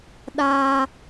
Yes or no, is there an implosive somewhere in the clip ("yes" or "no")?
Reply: yes